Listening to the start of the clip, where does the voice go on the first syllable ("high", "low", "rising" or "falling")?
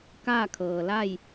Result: falling